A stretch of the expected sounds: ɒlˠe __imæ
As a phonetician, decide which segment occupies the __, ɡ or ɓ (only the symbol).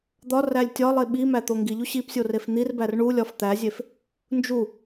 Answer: ɓ